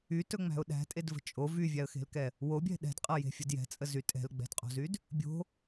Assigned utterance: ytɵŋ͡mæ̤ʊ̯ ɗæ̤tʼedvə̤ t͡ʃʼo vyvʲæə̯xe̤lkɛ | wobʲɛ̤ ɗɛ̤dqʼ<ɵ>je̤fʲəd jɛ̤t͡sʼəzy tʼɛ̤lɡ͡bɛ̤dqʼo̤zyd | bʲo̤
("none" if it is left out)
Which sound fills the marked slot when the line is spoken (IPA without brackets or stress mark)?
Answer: ɤ